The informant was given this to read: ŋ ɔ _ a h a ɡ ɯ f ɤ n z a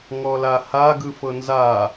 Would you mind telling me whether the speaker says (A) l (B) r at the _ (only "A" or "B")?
A